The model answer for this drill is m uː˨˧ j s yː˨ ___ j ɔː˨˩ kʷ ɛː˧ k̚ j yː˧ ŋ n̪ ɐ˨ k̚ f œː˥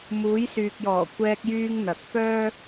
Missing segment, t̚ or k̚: k̚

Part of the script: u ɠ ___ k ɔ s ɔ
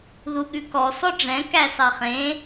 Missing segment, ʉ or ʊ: ʉ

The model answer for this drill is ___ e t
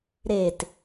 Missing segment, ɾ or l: ɾ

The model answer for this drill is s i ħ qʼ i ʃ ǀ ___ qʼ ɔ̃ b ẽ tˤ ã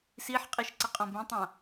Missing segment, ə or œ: ə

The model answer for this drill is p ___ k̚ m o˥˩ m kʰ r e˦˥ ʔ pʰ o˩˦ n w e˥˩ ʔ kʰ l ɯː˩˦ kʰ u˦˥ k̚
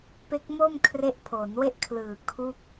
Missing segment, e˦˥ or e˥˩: e˦˥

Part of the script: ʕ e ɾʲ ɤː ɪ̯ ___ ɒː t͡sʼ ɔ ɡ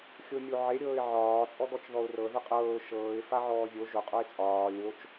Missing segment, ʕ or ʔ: ʕ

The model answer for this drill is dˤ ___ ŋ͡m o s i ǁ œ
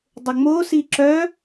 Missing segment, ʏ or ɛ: ʏ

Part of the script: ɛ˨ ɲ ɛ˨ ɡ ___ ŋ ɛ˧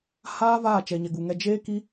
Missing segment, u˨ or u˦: u˨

